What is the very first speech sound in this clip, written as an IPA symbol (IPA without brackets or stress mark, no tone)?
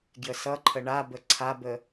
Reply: ɡ